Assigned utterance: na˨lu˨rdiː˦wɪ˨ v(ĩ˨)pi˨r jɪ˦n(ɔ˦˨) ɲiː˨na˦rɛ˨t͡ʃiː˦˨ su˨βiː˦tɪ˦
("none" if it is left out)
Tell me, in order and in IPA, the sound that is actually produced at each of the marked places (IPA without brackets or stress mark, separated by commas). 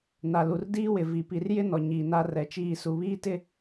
i˨, ɔ˨